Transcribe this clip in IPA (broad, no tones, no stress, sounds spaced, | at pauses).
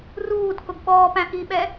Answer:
r uː d k ʊ ɡ ɓ ɔː p æ̃ ʔ i ɓ ɛ